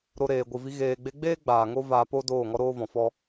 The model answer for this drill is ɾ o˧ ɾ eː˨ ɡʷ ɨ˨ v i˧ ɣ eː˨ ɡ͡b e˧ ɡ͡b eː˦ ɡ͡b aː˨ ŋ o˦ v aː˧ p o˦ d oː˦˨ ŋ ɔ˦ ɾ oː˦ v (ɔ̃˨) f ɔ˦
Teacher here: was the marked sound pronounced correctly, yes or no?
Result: yes